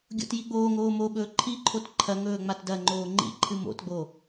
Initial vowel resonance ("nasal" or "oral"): oral